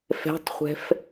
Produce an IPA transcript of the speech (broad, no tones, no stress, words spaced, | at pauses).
fɛ̤tˤχʷɛ̤f